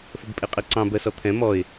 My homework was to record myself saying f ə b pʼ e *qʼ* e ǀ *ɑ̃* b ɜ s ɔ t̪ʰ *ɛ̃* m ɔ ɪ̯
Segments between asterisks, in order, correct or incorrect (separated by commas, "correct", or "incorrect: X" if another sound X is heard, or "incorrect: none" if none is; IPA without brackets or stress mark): correct, correct, correct